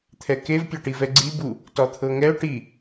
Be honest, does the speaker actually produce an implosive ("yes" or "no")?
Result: no